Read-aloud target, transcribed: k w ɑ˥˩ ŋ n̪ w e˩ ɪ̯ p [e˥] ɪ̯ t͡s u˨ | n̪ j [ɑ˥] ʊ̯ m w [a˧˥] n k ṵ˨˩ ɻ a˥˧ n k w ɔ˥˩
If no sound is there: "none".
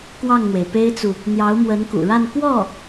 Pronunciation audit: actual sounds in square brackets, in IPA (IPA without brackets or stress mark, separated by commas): e˥, ɑ˧˥, ə˧˥